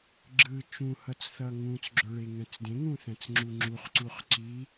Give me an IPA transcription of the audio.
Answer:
ɡ͡ǁ ɯ t͡ʃ ũ h ʌ t͡s θ ʌ ŋ ũ t͡s ɡ͡ǁ ɵ ɭ e ŋ ɛ̃ t͡s d ẽ ŋ ũ θ ɛ̃ t͡s ŋ͡ǁ u ŋ͡ǁ u χ ǀ u χ ǀ i

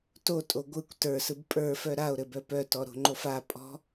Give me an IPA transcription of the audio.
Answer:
t o tʼ o ɡʷ ɯ kʷ t ə˞ s ɯ b pʼ ə˞ f œ ɾ a o̯ ɾ ɘ b œ p œ t ɔ ɾ o̤ ŋ͡ǃ o f a pʼ ɔ̤

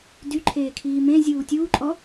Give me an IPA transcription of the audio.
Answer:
d y ǃʰ eː kʰ iː m ẽ zʲ uː tʲ uː ǃʼ ɔ

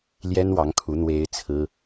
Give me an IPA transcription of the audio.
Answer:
l j ɛ˥ n w ɑ˧˥ ŋ kʰ u˧˥ n̪ w e˥ ɪ̯ t͡sʰ ɹ̩˥

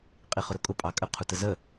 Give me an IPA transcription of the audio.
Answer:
qʼ i χ ʊ ɾ ʊ kʼ ʊ pʼ ɑ kʼ ə qʰ u t ə z ə

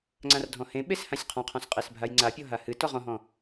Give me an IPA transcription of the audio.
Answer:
ŋ͡ǀ ã r dʱ ɔ̃ h ẽ ɓ e s h ã sʲ qʰ ɔ̃ qʰ ɔ̃ s qʼ e s bʱ a j ŋ͡ǀ a pʲ ɔ ɦ a h ɨ t ɔ ʁ ɔ̃ ɦ ɔ̃

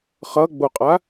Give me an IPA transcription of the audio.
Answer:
χ ʌ ɡ͡b o qʼ a

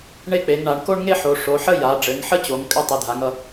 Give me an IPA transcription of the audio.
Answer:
ɳ e˥ k͡p e˩˧ ŋ ɳ a˩˧ ɳ k o˥ ɳ ŋ e˥ ħ o˩˧ ʂ o˩˧ ħ ə˥ j a˩˧ ɖ͡ʐ ɘ˩˧ ŋ ħ ə˥ t͡ɕ o˩˧ ŋ kʼ ɘ˥ tˤ ɨ˩˧ dʱ a˩˧ ŋ ʌ˩˧

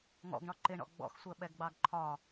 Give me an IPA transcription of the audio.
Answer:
ŋ ɔ̰ ɡ ɳ ɒ ǃ ɪ ɳ ɔ̰ ɡ͡b ɔ̰ x sʷ ɜ ɓ ɛ ɡ ɡ͡b ɑ ɡ ǃʰ ɒ

